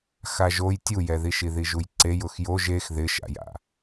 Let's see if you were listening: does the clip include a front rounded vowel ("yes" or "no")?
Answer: no